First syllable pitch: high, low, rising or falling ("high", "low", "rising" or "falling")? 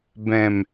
low